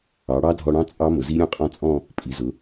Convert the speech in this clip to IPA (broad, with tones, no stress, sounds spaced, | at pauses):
ɑ˩˧ ɽ ɑ˦˥ dʱ ɔ˧ ɽ ɑ̃˦˥ t͡sʼ ɑ˦˥ m ʊ˩˧ z i˦˥ ɾʲ ɔ̃˦˥ qʼ ɔ̃˦˥ t͡sʼ ɔ̃˥˧ | pʼ i˩˧ z ʊ˩˧